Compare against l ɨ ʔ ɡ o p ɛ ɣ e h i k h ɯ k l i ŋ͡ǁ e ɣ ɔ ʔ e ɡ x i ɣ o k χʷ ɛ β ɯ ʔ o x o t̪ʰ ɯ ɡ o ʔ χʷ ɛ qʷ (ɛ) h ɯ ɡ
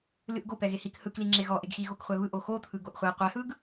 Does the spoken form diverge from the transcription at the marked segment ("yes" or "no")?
no